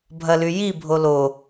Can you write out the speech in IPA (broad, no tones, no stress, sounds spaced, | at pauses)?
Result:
bʱ ɐ l y j i bʱ o l o